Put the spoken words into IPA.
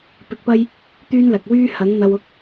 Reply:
p ɪ˧ k̚ p ɐ˥ j | t̪ yː˥ n l ɐ˨ k̚ w yː˥ h ɐ˨˥ ŋ n̪ ɐ˧ w ʊ˥ k̚

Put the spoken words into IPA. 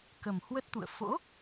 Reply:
k ə˨˩ m h w ə˦˥ t̚ t̪ ṵ˧˨ ə̯ f o̰˧˥

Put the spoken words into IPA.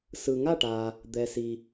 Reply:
s ɯ˩ ŋ a˥˩ ʈ a˩ | d̪ ɛ˩ s i˩

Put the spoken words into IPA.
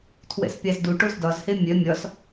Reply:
tʰ w ɛ̰ s pʲ ɑ z d u ʈ o z d ɒ z h e mʲ œ mʲ ɒ s

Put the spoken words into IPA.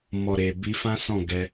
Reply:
m ɔ˨ ɾ e˨ b i˧ f ã˦ s ɔ̃˦˨ ɡ ɛ˧

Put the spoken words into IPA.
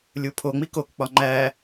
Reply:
lʲ u pʰ o ŋ͡m i k o k k͡p ɒ ŋ͡ǃ æ

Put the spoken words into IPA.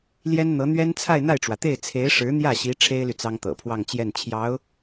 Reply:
l j ɛ˥ n n̪ ɤ˧˥ n̪ ɥ ɛ˥ n t͡sʰ a˥˧ ɪ̯ n̪ a˥˩ ɪ̯ ʈ͡ʂ w ä˩ t̪ e˥˩ ɪ̯ t͡sʰ e˧˥ ɪ̯ ʂ ɻ̩˧˥ n̪ j ä˥˩ ɕ i˧˥ ʈ͡ʂʰ e˥ ɪ̯ l y˨ t͡s ɑ˥ ŋ t̪ ɤ̰˨˩ pʰ w ɑ˥˧ ŋ t͡ɕ j ɛ˥˩ n t͡ɕʰ j ɑ˧˥ ʊ̯

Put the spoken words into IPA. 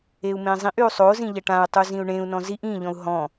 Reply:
e u̯ m ẽ zˤ ĩ ʔ y u̯ sˤ o z ĩ ʎ ɐ ʈ ã u̯ tˤ u z ĩ u̯ ɳ ẽ u̯ n ɔ̃ z i ʔ ĩ ʎ ɔ̃ u̯ ɦ ɔ̃

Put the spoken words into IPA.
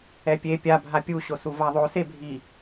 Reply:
ɛ pʲ e pʲ a bʱ a pʲ u ɕ o s u v a ðˤ o s e bʱ i

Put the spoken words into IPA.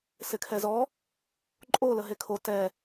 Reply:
s ɪ kʰ ɛ z ɔ | ǃʼ o l ə ɦ e kʰ o t ɛ

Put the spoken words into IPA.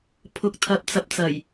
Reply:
pʰ ʊ˧ k̚ t̪ʰ ɐ˧ p̚ t͡s ɐ˧ p̚ t͡s ɐ˨˩ j

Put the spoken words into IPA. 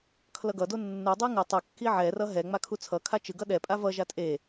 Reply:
kʰ l ʌ ɡ ʌ d o nː u dˤ ɯ ŋ ɯ tˤ ɯ kː i ʕ ɛ r ʌ ɦ ɛ ŋ͡m a kʰ u t͡sʰ ʌ kʰ a t͡ʃ ɯ ɡ ʌ ɗ ɛ pʼ a v ʌ ʒ a tʼ e

